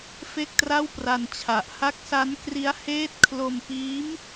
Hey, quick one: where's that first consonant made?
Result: lips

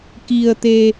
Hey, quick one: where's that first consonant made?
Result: velum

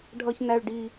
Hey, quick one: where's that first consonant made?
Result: retroflex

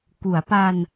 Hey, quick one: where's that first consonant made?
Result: velum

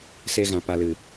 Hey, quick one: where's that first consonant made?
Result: tongue tip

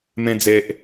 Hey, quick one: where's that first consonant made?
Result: lips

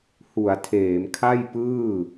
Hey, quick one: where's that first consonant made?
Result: throat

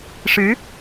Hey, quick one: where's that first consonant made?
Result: retroflex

